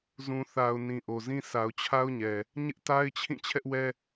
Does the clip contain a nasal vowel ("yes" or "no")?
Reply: yes